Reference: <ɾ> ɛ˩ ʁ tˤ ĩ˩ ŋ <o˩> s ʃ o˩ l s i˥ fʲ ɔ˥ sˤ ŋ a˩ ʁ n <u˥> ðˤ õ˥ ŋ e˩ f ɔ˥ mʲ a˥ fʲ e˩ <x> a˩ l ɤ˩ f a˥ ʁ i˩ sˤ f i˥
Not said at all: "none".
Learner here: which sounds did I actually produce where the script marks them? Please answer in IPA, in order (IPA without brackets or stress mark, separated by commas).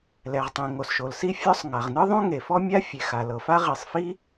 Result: l, o˩, ɯ˥, x